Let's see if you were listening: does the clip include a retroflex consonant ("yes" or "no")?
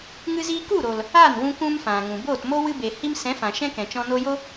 no